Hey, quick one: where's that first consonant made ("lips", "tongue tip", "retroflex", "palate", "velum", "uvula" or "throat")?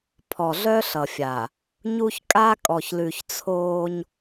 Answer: lips